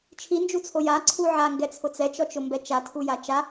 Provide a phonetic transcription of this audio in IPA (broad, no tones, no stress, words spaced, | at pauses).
t͡ʃʰind͡ʒut͡sʰo jaǀʰu ʕaŋɡɛt͡sʰʊ t͡sɛt͡ʃɔt͡ʃʊmbɛ t͡ʃatʰuja t͡ʃa